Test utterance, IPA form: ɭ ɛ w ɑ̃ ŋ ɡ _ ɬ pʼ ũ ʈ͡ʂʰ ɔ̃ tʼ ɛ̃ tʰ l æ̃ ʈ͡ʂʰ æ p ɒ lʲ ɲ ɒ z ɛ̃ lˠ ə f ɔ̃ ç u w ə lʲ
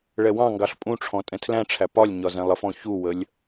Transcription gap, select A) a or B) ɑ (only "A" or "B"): B